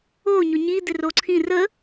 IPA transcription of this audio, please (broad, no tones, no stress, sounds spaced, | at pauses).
o ɲ o ɲ i d̪ ɪ r o ǀʰ ĩ r ə